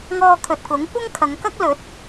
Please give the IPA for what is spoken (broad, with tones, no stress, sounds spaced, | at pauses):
ŋ ɔː˧ kʰ ɵ˨ t̚ k ʊ˨˥ ŋ kʷ ɐ˥ ŋ kʰ ɐ˨˧ ŋ k ɐ˥ k̚ l ɵ˨˥ t̚